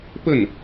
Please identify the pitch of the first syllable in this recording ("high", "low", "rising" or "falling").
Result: falling